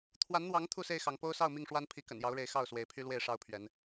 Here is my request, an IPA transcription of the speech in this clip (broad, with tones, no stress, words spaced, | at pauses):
t̪ʰwa˨˦nn̪wɑ˨˦ŋ t̪ʰu˥˨se˥˨ɪ̯xɑ˨˦ŋ po˦ʊ̯sɑ˥˨ʊ̯mi˥˨ŋʂwa˦n pʰi˨˦kə̰˨˩njɑ˨˦ʊ̯ɻe˨˦ɪ̯ xɑ˥˨ʊ̯swe˨˦ɪ̯pʰy˦ lwe˥˨ɪ̯ʂɑ˦ʊ̯pʰɥɛ˨˦n